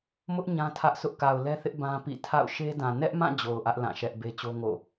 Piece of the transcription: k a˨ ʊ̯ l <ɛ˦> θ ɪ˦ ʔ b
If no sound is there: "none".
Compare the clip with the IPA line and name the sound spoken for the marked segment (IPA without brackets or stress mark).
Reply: ɛ˦